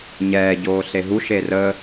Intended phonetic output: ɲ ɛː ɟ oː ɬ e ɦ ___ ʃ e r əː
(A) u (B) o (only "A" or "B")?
A